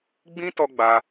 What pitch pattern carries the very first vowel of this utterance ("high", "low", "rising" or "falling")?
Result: high